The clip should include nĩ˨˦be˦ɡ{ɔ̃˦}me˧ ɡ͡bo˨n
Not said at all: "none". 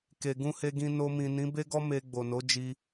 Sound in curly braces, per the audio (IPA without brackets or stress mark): ɔ˦